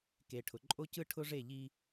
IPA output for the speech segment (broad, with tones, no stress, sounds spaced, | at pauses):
k e˨ ʈʰ ʊ˨ ǃʼ o˦ c ɯ˦ ʈʰ ʊ˦ ʐ e˦˨ ʎ i˦